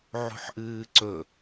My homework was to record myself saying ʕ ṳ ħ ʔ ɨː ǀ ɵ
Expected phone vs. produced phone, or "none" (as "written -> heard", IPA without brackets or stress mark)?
none